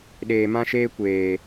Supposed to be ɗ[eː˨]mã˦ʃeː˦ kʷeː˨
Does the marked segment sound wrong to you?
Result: no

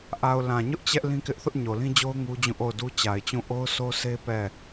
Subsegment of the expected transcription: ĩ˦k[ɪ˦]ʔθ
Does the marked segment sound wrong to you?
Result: no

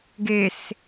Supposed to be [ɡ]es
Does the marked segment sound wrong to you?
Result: no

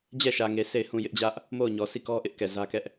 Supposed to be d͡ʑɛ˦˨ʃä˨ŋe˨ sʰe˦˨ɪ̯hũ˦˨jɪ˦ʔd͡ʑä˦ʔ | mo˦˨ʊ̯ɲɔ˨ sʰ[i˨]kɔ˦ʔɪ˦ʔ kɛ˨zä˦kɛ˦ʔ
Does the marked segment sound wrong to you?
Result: yes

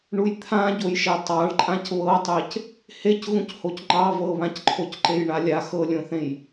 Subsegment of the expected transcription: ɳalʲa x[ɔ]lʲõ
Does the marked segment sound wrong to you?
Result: yes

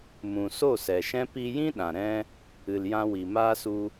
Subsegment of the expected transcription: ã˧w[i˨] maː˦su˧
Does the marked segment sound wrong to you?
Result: no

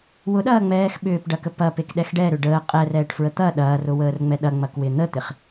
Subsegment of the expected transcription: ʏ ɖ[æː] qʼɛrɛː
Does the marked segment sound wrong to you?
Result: yes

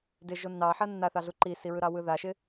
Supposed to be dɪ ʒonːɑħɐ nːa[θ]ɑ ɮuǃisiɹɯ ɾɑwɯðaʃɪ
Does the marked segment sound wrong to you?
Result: no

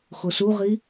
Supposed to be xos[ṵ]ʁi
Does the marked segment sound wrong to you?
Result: yes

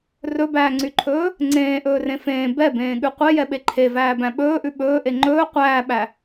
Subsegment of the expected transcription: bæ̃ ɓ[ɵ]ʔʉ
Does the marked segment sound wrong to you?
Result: yes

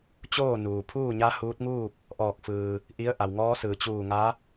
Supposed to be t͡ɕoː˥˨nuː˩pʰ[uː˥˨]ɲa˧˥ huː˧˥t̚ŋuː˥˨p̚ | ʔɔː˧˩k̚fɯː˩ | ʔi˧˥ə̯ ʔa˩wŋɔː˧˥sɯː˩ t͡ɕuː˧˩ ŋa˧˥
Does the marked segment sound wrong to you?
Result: no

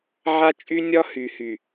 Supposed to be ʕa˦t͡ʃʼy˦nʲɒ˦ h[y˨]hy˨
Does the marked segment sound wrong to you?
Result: no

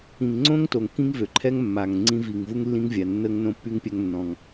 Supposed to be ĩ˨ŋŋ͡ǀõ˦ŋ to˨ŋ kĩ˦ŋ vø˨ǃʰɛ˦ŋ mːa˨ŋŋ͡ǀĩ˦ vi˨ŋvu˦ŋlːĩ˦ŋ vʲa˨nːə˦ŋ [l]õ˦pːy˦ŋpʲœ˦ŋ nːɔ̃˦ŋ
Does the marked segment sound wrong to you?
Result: yes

